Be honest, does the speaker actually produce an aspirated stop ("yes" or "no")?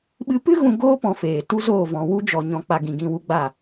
no